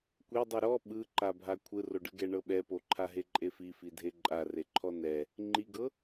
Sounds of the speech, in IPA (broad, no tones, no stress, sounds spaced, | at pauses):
kʷ e dˤ ɯ ɾ ɔ ɓ ɯ ǃ a bʱ a kʷʰ ɯ r o ɖ ɯ ɡ ɛ ɳ ɤ ɓ ɛ p o ǃʰ a ɦ e ǃʼ e f i f i dʱ e ǃʼ a r e ǃʰ ɔ n ɛ | ŋ͡ǃ i ɡ ɤ